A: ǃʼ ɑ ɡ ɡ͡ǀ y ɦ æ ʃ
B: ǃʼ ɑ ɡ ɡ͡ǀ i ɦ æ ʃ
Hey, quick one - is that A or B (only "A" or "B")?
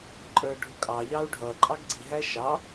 B